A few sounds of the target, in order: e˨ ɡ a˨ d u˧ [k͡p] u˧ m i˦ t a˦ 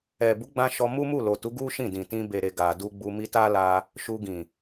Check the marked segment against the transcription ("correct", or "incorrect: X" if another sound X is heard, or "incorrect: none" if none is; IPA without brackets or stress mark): incorrect: ɡ͡b